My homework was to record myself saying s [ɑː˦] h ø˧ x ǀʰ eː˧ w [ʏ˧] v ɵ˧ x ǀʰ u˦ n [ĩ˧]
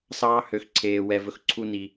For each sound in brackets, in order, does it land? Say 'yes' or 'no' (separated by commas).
yes, no, no